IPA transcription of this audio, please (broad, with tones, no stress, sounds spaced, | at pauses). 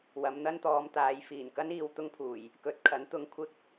w ɐ˨˧ m n̪ ɐ˥ n t̪ ɔː˨˧ m t̪ aː˨˧ j f iː˨˩ n k ɐ˥ n iː˨ w t̪ ʊ˥ ŋ pʰ uː˨˩ j | k ɵ˨˥ t̚ kʰ ɐ˨˥ n t̪ ʊ˧ ŋ kʷʰ ɪ˥ k̚